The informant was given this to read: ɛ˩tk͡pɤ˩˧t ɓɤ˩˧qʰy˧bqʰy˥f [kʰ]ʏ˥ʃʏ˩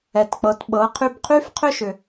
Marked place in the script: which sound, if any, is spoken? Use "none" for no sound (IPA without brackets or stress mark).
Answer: qʰ